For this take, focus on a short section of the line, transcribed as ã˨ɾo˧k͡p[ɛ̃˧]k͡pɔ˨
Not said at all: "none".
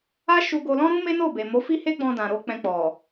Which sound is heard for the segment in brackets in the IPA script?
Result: ɛ̃˧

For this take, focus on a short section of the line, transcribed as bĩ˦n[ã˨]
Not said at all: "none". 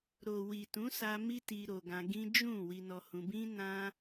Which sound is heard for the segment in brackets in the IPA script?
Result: ã˦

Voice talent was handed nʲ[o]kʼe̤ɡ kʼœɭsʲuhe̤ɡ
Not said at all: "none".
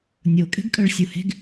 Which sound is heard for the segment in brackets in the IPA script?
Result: o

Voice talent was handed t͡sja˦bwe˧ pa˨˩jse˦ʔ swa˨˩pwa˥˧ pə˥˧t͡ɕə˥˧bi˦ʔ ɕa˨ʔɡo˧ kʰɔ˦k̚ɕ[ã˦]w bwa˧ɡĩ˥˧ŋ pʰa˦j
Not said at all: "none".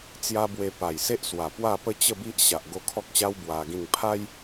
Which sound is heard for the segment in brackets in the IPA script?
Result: a˦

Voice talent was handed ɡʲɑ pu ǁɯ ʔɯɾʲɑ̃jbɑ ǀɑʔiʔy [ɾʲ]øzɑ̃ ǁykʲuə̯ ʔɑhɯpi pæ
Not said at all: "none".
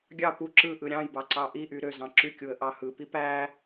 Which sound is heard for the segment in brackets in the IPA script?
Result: ɾ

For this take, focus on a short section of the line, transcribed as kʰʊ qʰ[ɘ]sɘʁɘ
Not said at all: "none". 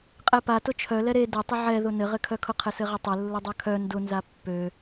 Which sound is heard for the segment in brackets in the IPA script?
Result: ɘ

